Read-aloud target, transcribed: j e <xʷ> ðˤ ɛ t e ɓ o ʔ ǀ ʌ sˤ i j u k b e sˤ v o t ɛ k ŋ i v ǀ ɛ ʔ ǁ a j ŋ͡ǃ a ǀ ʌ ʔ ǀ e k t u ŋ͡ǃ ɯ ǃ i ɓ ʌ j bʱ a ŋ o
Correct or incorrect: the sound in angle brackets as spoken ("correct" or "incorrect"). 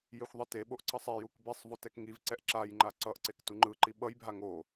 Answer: correct